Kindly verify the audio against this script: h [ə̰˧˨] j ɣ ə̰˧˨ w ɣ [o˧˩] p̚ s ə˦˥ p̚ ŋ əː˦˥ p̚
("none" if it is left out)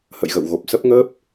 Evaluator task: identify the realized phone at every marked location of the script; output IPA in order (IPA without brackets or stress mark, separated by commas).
ə̰˧˨, o˨˩